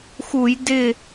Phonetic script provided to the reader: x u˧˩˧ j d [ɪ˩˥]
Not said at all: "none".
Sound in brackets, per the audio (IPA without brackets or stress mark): ɪ˧˩